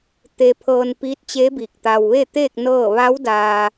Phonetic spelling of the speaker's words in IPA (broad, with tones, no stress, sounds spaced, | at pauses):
t̪ e˧ pʰ ɤː˧ n p iː˧˥ t̚ t͡ɕ e˧˥ b iː˧˩ k̚ t̪ a˧ w ʋ e˥˨ t̪ eː˥˨ k̚ n ɤː˥˨ ʋ a˧˥ w d aː˧